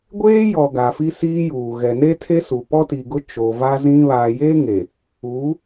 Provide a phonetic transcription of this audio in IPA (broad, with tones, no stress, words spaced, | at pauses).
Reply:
ɡʷeː˦jɔ˨ ɡa˨ fi˦siː˦juː˨ ɣɛ˨ne˦tʰe˦su˨ pɔ˦ti˨ɡʊ˦ t͡ʃo˨ va˦zĩ˦ βaː˨jeː˦ŋe˨ | uː˨˦